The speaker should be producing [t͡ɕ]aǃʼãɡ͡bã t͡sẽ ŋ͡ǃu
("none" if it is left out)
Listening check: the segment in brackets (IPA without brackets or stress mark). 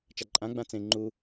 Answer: t͡ʃ